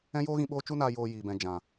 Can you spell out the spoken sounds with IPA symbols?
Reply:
ɛ̃˦ j oː˦ ɣ ĩ˧ ɓ oː˦ t͡ʃ u˦ n aː˧ j oː˧ j iː˨ b ɛ̃˨ d͡ʒ ã˨

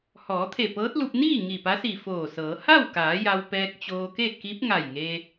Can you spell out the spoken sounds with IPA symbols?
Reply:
h ɔː˩˧ t̪ʰ e˧˩ p ɤː˧˥ t̚ l u˧ p̚ n iː˥˨ ŋ i˧˩ p a˧˥ s i˧˩ f oː˧˩ s ɤː˩˧ h a˥˨ w k aː˩˧ j a˧ w p ɛː˧ k̚ t͡ɕ oː˧ k e˥˨ k i˧˥ p̚ ŋ a˧˩ j ŋ e˧

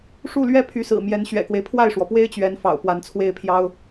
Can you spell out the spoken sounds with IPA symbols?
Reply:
ʂ u˥˩ l ɥ ɛ˥ pʰ y˧˥ s ɹ̩˨˩ m j ɛ˧˥ n ɕ ɥ ɛ̰˨˩ k w e˦ ɪ̯ pʰ w a˥˩ ɪ̯ ʂ w ɔ˩ p w e˥ ɪ̯ t͡ɕ ɥ ɛ˧˥ n f ɑ̰˨˩ ʊ̯ p w a˧˥ n t͡sʰ w e˥˩ ɪ̯ pʰ j ɑ˥ ʊ̯

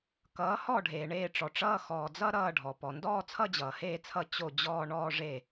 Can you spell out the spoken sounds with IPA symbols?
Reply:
k ʌː˩˥ h ɔ˥˩ ɖʱ eː˩ ɳ eː˥˩ ʈ͡ʂ ɔ˩ ʈ͡ʂ ʌː˥˧ x ɔː˩ d͡z ʌ˥˧ ɾ ʌː˥˩ ɖʱ ɔ˩ p ɔ˩ n d ɔː˥˧ t͡sʰ ʌ˥˧ d͡ʑ ʌː˩ h eː˥˩ t͡sʰ ʌ˥˩ t͡ɕ o˥˩ d͡ʑ ɔː˥˧ ɳ ɔː˥˧ ʐ e˥˩

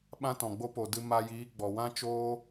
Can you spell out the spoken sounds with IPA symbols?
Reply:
ɓ ã˦ t ɔ̃˨ ɡ͡b o˦ p o˨ d ɨ˧ m a˧ j iː˨˦ ɡ͡b ɔ˨ w ã˦ t͡ʃ oː˦

